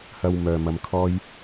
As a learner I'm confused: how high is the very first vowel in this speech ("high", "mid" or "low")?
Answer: low